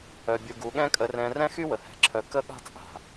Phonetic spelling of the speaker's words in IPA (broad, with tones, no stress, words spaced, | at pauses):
œ˧bʲu˧ɡu˨˦ ɠɛ̃˦kʼə˧rɛ̃˧ rɛ̃˦xy˦ wə˨hɛ̤˨ǁʰœ˧ kə˦ɠa̤˦t͡sʼa̤˨